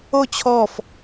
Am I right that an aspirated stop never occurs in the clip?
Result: no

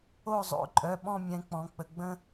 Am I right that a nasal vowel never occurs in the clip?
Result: no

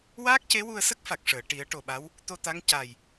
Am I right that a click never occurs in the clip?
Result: yes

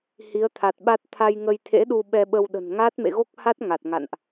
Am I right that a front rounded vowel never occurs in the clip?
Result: yes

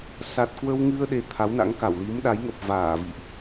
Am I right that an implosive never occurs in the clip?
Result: no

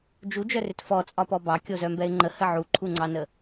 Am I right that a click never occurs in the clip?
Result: no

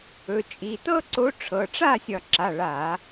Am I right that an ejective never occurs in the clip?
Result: no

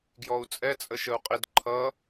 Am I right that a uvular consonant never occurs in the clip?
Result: no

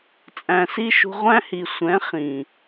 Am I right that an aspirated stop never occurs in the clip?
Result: yes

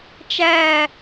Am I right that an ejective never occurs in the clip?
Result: yes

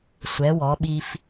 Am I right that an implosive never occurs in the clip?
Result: no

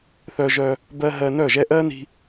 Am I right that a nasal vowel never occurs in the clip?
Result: yes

